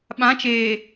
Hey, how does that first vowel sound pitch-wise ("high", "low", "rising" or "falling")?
rising